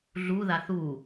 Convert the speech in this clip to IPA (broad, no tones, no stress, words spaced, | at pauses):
ɮu ðaθu